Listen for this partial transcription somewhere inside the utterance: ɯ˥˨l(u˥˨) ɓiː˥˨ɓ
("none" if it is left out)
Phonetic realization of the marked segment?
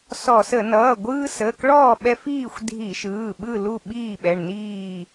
u˥˨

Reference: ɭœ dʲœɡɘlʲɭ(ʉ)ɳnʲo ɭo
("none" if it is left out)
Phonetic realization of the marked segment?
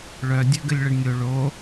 ɘ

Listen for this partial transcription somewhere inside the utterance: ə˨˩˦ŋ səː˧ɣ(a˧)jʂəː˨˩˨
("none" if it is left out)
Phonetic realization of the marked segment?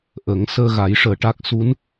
a˨˩˦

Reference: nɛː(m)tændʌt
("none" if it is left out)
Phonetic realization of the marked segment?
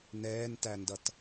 n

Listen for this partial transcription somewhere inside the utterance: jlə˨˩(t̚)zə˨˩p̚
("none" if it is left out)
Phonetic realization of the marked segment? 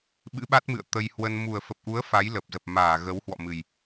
p̚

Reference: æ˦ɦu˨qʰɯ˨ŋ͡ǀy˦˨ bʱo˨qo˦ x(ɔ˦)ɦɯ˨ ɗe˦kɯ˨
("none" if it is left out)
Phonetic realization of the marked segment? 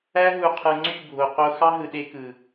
ɑ˦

